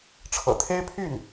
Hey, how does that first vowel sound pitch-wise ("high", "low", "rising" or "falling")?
low